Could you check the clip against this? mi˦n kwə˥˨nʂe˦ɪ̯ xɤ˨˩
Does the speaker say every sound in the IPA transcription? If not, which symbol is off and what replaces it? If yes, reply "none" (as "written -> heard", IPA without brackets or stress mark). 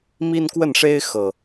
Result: none